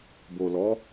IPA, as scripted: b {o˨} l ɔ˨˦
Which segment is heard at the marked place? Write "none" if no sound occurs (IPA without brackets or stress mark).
o˨